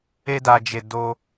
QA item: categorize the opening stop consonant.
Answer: plain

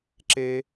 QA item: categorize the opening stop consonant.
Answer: click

